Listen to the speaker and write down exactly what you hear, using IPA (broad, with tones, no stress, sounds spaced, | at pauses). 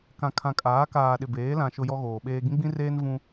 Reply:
k ã˨ kʰ ã˨ kʼ aː˨˦ k aː˨ ɗ ɪ˨ b eː˨˦ l ã˨ ʃ ʊ˦ j ɔ˦ ɣ oː˨ ɓ eː˦ ɡ ĩ˦ ɡ͡b ĩ˦ r eː˦ n v ũ˦